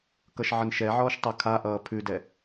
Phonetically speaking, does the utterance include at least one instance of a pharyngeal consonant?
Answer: yes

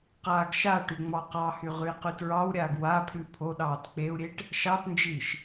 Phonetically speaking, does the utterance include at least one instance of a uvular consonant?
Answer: yes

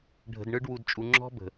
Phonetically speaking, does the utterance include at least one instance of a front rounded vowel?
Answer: no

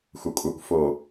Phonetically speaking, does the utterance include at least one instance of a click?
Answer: no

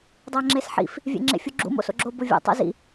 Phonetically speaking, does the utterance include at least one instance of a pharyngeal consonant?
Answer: yes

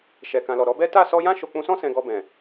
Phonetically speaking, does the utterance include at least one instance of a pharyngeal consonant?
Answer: no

